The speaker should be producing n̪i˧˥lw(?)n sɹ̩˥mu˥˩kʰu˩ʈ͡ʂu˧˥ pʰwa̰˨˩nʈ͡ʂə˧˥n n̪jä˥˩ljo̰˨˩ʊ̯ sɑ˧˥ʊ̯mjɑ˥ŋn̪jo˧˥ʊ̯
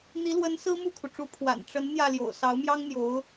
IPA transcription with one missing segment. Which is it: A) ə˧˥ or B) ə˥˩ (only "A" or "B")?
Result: A